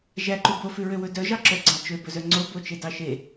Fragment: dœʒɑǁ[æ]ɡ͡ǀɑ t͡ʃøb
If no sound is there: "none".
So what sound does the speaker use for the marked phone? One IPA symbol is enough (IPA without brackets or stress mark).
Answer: œ